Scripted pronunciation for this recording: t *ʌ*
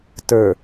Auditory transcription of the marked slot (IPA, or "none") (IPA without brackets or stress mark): ə˞